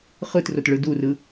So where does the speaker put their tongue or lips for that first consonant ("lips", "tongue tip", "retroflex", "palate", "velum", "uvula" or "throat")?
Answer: uvula